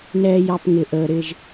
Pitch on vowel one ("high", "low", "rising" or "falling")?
low